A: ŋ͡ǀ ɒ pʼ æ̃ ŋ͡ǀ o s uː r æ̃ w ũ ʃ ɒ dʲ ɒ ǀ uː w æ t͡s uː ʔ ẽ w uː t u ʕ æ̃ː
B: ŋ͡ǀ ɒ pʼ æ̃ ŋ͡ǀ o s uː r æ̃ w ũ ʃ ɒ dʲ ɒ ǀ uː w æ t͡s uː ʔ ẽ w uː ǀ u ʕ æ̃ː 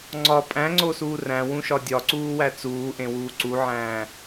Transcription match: B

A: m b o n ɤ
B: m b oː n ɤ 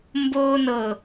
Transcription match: B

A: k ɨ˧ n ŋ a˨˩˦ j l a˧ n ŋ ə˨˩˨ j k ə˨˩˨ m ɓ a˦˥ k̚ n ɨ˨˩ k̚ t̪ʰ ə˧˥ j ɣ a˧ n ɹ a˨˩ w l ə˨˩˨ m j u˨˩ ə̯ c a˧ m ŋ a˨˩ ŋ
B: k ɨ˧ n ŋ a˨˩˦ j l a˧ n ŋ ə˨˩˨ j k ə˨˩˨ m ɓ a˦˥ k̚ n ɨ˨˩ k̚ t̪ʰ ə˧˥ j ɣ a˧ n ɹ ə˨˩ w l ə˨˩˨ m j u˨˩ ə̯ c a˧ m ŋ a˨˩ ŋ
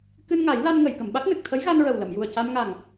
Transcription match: B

